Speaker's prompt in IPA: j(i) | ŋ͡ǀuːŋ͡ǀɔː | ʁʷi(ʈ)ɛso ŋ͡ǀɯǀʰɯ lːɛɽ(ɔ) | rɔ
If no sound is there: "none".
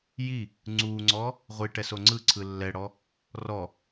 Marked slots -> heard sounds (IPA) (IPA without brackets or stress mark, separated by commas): i, ʈ, ɔ